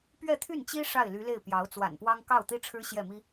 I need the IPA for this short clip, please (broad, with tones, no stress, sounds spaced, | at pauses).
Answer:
p ɥ ɛ˥˧ t̪ʰ y˥˩ n t͡ɕ i˥ ʂ a˥˩ ɪ̯ l y˧˥ l e˥˩ ɪ̯ p j ɑ˧˥ ʊ̯ t͡s w a̰˨˩ n p w ɑ˥ ŋ k ɑ˥˩ ʊ̯ t̪ i˥ ʈ͡ʂʰ ɻ̩˥ ɕ j ɛ˥˩ m i˥